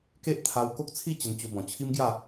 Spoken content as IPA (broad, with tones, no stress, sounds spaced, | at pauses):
k e˦ ʔ t̪ʰ a˧ w k o˦ k̚ t͡sʰ i˥˧ t͡ɕ ə˧ n t͡ɕ o˧ b ɔ̃˨˩ t͡ɕʰ i˦ m ɡ j a˥˧